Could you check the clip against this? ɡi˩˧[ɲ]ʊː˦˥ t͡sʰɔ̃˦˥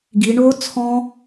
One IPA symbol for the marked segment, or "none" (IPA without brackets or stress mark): ɳ